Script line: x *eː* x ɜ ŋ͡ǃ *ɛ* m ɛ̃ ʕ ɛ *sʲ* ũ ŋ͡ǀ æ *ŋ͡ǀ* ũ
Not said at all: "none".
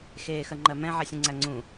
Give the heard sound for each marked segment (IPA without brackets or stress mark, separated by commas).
eː, ɜ, sʲ, ŋ͡ǀ